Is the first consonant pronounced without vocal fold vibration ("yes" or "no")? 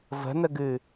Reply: no